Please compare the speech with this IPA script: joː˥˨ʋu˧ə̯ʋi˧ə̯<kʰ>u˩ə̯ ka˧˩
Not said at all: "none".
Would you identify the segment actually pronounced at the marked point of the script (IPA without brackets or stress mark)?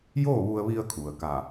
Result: kʰ